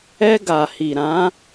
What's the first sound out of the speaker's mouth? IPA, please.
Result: ɛ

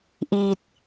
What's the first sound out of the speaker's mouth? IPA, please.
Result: ʔ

